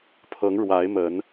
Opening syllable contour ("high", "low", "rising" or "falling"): rising